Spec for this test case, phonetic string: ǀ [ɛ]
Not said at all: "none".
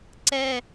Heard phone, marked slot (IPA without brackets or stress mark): ɛ